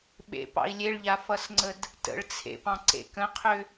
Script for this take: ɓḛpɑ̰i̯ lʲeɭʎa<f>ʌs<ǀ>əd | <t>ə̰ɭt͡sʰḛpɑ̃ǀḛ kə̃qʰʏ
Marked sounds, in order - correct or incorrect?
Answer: correct, incorrect: ŋ͡ǀ, correct

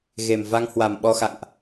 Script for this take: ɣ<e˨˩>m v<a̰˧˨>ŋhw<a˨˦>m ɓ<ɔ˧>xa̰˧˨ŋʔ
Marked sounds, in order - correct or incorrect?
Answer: correct, incorrect: a˧, incorrect: a˨˩, correct

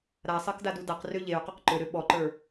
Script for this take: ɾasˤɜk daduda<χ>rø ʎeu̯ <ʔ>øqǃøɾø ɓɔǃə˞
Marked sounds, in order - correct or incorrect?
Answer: incorrect: q, incorrect: q

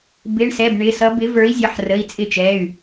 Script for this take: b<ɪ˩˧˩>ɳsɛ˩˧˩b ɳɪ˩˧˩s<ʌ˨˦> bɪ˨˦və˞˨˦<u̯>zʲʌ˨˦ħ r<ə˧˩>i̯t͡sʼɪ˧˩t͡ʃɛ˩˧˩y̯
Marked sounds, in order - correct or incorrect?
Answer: correct, correct, incorrect: i̯, incorrect: ə˩˧˩

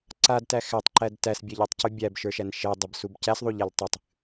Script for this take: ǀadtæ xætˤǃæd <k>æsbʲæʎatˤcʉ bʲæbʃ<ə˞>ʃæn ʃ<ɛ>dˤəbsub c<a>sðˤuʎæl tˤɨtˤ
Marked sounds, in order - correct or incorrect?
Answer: incorrect: t, correct, correct, incorrect: æ

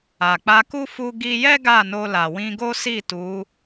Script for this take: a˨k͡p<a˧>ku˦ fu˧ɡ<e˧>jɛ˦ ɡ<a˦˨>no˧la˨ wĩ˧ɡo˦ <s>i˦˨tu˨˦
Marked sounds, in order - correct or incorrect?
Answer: correct, incorrect: i˧, correct, correct

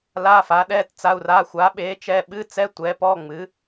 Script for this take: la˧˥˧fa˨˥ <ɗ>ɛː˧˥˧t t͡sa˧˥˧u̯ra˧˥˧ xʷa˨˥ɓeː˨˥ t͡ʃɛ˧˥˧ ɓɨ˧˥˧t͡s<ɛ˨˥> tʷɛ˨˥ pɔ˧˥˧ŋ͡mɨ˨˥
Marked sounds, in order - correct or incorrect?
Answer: correct, incorrect: ɛ˧˥˧

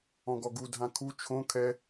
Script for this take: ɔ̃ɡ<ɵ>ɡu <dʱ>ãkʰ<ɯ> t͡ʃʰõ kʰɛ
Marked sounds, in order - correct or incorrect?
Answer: incorrect: ɔ, correct, incorrect: u

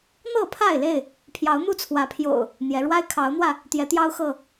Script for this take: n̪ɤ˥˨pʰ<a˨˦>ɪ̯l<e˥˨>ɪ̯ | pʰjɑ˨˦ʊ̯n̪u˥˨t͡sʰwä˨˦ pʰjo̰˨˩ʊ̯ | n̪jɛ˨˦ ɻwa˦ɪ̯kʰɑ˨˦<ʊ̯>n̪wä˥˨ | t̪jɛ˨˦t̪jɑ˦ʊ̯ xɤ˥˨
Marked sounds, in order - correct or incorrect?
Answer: incorrect: a˥˨, correct, correct

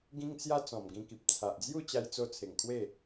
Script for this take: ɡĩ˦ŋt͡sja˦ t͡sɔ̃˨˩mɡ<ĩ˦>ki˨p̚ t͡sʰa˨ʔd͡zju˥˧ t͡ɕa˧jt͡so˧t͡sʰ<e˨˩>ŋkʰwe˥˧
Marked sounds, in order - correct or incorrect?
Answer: incorrect: ĩ˧, correct

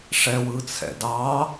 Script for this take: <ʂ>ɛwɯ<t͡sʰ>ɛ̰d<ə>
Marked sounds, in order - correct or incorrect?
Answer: correct, correct, incorrect: ɑ

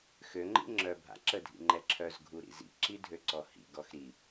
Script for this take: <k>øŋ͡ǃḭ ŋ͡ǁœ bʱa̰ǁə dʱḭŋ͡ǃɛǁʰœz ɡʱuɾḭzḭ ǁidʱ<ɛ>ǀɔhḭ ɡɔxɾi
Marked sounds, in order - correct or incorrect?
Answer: incorrect: x, incorrect: ø

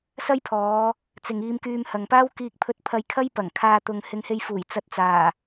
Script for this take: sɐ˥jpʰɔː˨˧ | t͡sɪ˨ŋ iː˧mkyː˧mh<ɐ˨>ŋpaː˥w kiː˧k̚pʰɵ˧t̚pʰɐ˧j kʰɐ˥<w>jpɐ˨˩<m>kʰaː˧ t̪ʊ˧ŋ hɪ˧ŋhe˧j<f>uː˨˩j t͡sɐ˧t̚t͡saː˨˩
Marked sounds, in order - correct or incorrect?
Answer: correct, incorrect: none, incorrect: ŋ, correct

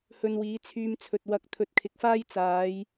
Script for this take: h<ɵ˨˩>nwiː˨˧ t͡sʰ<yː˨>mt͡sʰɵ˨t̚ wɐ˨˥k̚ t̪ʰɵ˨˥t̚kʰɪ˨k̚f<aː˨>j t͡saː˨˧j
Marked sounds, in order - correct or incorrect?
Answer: incorrect: ɵ˧, incorrect: yː˧, incorrect: aː˥

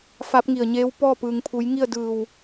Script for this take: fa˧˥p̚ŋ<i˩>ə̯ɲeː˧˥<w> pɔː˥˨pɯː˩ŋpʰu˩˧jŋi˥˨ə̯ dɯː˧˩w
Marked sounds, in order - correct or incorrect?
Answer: incorrect: i˧˩, correct

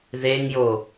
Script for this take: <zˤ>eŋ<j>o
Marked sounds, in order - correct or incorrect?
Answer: incorrect: ð, correct

